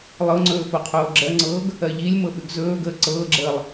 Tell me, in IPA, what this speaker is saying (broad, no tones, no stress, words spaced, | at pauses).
lˠɤŋ͡ǀɵː foqʰoːɡ͡ǁɜŋ͡ǀɤːɡ | ɜʎilʲmɤ ɓʉɡzɵːɡəː ǀɤːɡ͡ǁəːlˠ